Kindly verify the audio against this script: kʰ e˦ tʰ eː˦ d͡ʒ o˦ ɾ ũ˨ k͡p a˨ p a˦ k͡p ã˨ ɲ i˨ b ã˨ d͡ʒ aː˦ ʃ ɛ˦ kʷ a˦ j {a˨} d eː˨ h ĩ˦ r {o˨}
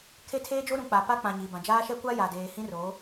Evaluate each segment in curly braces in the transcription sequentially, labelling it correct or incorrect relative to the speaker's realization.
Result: correct, incorrect

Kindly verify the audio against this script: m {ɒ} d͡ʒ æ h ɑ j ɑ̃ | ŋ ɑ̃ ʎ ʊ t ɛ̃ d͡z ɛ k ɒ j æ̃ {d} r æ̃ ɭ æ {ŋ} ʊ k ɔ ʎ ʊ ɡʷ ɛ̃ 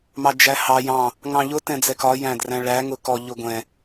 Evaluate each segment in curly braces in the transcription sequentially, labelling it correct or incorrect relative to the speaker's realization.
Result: incorrect, correct, correct

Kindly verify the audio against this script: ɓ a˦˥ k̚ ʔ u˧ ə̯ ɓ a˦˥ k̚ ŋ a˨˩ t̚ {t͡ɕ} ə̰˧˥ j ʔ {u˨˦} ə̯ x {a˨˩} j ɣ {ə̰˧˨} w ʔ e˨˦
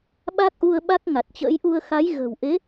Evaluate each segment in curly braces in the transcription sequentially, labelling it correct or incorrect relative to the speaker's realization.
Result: correct, incorrect, incorrect, incorrect

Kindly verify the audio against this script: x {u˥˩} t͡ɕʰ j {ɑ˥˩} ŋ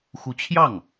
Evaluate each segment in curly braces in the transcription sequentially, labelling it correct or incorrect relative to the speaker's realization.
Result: incorrect, correct

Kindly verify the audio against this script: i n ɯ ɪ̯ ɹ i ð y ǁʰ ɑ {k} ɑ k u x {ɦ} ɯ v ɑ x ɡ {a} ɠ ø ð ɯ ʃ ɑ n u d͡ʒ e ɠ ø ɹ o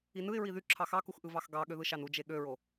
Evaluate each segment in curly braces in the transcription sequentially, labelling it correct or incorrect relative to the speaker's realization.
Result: incorrect, incorrect, incorrect

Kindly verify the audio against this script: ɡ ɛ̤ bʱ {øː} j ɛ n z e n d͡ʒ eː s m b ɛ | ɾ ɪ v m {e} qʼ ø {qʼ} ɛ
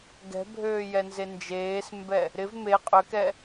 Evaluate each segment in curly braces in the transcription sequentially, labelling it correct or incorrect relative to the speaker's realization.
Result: correct, correct, incorrect

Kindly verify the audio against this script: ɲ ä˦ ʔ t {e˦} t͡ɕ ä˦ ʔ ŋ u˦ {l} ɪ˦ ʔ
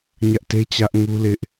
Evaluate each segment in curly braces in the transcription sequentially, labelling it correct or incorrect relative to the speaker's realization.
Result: correct, correct

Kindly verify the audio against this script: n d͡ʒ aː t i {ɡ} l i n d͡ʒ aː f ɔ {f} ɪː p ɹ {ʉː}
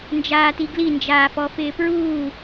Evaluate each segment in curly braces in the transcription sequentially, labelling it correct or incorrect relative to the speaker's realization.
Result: correct, correct, incorrect

